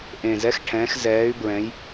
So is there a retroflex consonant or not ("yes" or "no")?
yes